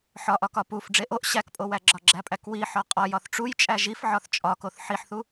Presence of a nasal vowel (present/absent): absent